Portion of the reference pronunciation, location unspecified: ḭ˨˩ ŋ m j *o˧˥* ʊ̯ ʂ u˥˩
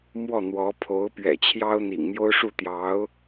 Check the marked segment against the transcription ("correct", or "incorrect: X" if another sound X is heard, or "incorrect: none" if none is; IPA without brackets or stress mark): incorrect: o˥